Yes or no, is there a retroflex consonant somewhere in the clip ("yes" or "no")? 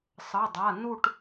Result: yes